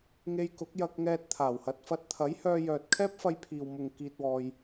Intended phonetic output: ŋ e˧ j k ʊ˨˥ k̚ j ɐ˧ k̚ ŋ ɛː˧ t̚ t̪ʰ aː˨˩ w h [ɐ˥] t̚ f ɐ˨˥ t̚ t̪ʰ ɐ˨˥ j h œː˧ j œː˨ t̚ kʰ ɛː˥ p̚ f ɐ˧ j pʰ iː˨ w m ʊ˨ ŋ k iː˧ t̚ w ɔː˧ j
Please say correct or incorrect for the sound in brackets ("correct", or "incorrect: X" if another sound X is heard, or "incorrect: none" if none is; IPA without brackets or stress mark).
incorrect: ɐ˨˥